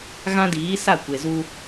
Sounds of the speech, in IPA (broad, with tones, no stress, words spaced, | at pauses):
ɣã˦diː˨˦sa˦˨ kʷe˨zu˦